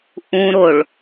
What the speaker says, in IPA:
ʔũ ɾoɭ

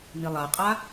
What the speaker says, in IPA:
nilˠaqʼa

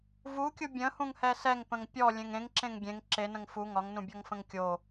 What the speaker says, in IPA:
vukʲu bʲə̃hũŋhɛ sɛŋpə̃ŋ pʲɔlʲẽŋ ẽŋǁẽŋ ɡʲẽŋ ǁenə̃ŋ fu ŋɒŋnũbʲɔŋfə̃ŋ kʲo

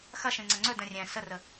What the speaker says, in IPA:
xɐʃẽŋ͡ǀɐ ŋ͡ǀɵdə̃ rʲɛ̃ sərə

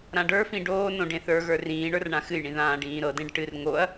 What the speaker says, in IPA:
ɾãɖə˞fĩ ɖoːnõ ɖẽθə˞ɣə˞ rĩːɳə˞r ɳãxɨjɳĩ ðãːɖĩːɾɤdẽɖ ʈɨr ŋoɐ̯

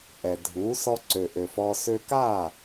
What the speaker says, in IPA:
ʔɛ˩dʱuː˩˥ sɔ˧ǀø˩ ʔø˩fɔː˧ sø˧kaː˥˩

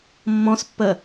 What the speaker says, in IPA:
mːɔ̃spːəː

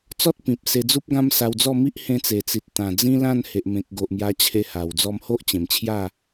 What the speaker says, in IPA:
t͡sɔ˦t̚ pĩ˨p̚ se˧d͡zu˦p̚ɡã˦m sa˧wd͡zɔ˥˧mi˦ʔ hẽ˧t͡se˨˩t͡si˨t̚t̪ã˨˩ d͡zĩ˦lã˥˧n he˨ʔmẽ˨k̚ɡo˨ʔ mja˧t͡ɕʰe˧ha˨˩w d͡zɔ˧mho˦ʔ t͡ɕẽ˨˩mt͡ɕʰja˥˧

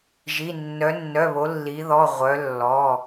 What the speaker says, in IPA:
ʒi˩˧˩ nːœ˩˧nːœ˩˧˩βo˩˧ lːi˩˧ðɔ˩˧˩ʁʷœ˩˧ lːɔ˩˧˩

